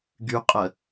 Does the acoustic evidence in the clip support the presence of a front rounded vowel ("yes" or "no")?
yes